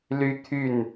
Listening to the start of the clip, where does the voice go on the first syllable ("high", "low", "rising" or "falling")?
high